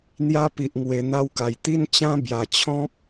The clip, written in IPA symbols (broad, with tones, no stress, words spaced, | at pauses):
n̪ja˦pi˨ʔŋwe˨˩ n̪a˦wka˨˩j t̪i˦n t͡ɕã˦bja˨˩t͡ɕʰɔ̃˦p̚